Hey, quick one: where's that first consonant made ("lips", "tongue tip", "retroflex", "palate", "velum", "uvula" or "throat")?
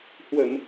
throat